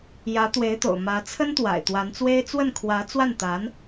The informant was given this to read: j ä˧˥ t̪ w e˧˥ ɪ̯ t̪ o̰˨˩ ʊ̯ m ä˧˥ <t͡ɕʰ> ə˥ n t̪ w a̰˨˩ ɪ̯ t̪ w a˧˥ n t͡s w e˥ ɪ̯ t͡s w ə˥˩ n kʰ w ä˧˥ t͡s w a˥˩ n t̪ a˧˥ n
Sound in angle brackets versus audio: incorrect: t͡sʰ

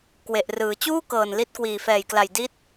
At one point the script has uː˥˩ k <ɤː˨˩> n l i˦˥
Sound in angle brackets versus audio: correct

